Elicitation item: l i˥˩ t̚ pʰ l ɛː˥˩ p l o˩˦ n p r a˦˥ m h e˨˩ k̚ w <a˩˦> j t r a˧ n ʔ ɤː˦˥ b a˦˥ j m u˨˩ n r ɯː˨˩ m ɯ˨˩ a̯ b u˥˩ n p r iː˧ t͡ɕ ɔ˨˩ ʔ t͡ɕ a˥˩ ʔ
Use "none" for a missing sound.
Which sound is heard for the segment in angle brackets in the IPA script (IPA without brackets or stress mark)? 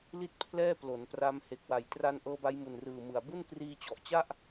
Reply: a˨˩